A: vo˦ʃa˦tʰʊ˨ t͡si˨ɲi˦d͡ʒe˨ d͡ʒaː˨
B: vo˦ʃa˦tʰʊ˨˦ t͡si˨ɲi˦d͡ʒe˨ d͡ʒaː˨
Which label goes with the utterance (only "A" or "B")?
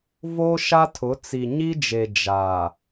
B